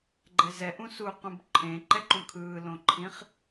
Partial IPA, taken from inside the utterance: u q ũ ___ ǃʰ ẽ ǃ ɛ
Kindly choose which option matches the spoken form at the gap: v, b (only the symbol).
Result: b